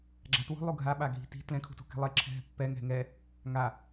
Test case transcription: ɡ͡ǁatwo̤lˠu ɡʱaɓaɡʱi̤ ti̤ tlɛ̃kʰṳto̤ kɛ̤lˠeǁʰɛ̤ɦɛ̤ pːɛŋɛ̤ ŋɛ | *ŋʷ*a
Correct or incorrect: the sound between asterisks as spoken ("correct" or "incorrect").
incorrect